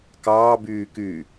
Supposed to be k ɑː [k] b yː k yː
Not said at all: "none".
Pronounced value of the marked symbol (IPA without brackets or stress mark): none